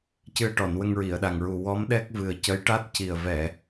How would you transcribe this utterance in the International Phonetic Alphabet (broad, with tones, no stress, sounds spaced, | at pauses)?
c ɨ˧ ə̯ ʈ ɔ˨˩˨ n w ə˧ ŋ ɹ i˨˩˨ ə̯ ɗ a˨˩ ŋ ɹ u˨˩ w ɔ˧˥ m ɗ ɛ˦˥ k̚ v ɨ˨˩ ə̯ c ə˧˥ j ʈ a˦˥ t̚ c i˨˩ ə̯ v ɛ˨˩˨